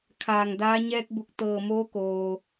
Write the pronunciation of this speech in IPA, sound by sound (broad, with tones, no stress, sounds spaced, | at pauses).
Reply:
kʰ aː˧˩ ŋ d aː˧˥ ɲ ɛː˧ k̚ b u˧˩ k̚ t̪ ɤː˧˩ m oː˧˥ k oː˩